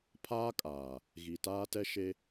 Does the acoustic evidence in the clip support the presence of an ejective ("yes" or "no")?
yes